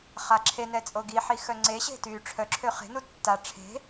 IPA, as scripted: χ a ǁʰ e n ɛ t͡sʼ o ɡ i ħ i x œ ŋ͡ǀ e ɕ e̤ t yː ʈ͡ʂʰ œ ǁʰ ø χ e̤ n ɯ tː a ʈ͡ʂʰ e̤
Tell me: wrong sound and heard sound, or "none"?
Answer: ɯ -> u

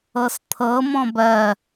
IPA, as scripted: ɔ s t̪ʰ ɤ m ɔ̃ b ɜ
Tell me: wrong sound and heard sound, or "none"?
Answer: ɔ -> ɤ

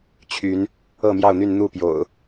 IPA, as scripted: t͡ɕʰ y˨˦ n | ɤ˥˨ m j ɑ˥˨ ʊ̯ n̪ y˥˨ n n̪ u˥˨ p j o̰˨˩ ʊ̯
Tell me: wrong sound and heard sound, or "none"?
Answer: none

